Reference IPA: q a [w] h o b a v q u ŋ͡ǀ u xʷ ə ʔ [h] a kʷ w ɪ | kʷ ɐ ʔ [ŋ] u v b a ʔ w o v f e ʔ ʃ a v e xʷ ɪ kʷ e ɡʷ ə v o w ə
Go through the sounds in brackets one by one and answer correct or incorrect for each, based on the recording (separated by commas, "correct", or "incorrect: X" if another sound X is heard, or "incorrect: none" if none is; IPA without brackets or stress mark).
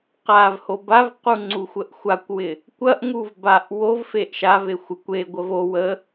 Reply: incorrect: v, incorrect: xʷ, correct